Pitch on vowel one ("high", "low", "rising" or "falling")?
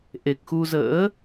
low